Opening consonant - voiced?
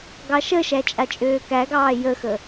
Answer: yes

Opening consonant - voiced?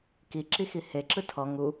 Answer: no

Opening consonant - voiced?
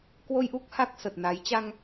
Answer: no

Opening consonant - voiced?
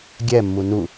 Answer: yes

